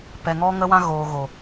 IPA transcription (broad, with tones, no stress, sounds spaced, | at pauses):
p ɛ˨ ŋ ɔ˧ ŋ ə˧ w ã˧ ɣ oː˨ ɣ o˨